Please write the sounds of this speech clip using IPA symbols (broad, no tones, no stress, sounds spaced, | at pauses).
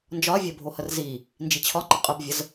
n d͡ʒ ɒ ɐ̯ vʲ ɜ bʱ o h ə r z i | n d͡ʒ i t͡ɕʰ ɒ ŋ͡ǃ ɪ qʼ ə b vʲ ə z